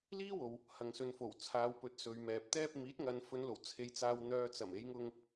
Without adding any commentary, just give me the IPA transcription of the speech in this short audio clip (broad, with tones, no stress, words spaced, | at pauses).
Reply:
liː˥wo˨w | hɐ˨ŋsɵ˨nfo˨˩w t͡sʰaː˨wpɵ˨˥t̚ sɵ˨ɥmɛː˨p̚ t̪ɛː˧p̚ miː˨˥t̚ŋɐ˨nfɵ˨˧nlo˨˩w t͡sʰe˨jt͡saː˨wn̪œː˨t͡sɐ˨˩m e˨˧jŋʊ˧ŋ